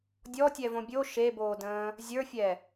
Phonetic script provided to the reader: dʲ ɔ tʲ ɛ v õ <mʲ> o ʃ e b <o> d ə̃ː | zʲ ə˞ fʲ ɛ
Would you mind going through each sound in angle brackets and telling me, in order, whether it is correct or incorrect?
incorrect, incorrect

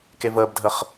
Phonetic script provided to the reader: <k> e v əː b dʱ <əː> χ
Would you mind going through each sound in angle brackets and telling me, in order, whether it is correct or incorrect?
correct, incorrect

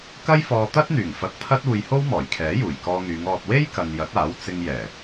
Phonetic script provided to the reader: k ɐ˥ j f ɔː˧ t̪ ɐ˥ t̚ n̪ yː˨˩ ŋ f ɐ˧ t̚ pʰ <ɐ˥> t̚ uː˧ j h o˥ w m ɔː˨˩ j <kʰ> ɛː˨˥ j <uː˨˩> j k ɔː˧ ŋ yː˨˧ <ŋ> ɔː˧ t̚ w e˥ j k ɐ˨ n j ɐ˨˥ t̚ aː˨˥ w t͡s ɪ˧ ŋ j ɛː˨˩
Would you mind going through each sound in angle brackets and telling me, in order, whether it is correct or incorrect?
correct, correct, correct, correct

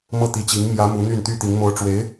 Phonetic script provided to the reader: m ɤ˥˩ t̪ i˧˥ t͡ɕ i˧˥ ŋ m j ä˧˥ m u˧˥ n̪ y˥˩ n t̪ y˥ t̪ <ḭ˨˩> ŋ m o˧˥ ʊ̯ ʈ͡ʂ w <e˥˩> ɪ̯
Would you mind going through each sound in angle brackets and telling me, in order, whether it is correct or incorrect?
incorrect, incorrect

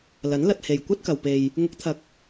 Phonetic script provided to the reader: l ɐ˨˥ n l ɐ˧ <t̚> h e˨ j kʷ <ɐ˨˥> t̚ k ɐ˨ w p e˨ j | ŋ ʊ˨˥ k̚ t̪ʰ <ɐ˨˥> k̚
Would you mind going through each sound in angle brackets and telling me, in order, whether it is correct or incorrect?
correct, incorrect, correct

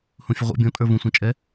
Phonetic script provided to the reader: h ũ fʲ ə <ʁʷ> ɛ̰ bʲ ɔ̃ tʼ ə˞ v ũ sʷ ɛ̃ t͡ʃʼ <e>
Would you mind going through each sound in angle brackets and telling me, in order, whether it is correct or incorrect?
correct, incorrect

